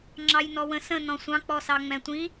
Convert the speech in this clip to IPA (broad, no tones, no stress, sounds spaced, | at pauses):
ŋ͡ǁ ɑ j n ɔ w ə̃ s ə̃ n ɔ̃ sʷ ɑ̃ k͡p ɔ s ɑ ŋ͡m ɛ̃ tʷ ĩ